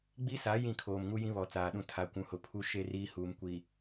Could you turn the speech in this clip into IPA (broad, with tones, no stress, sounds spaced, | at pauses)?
ɡ͡b i˦ s a˨˦ j ĩ˦˨ kʰ oː˨ m ŋ u˦ j ĩ˦ β ɔ˨˦ t͡s aː˨ ɗ ũ˦ tʰ a˨ kʷ ũ˨ h ʊ˨ pʰ u˦ ʃ e˦ r iː˦ h uː˨ m kʷ i˨